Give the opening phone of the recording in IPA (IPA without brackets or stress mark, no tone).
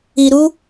i